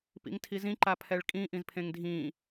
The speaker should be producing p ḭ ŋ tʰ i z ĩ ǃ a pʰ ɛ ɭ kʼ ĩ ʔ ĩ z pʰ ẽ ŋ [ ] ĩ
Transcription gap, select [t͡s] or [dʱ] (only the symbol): dʱ